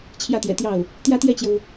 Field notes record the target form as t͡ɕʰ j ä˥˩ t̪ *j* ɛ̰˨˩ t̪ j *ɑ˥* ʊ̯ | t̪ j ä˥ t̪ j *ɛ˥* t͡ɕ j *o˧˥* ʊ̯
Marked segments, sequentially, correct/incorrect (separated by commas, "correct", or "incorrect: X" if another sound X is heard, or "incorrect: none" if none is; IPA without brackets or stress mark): correct, incorrect: ɑ˥˩, incorrect: ɛ˥˩, incorrect: o˩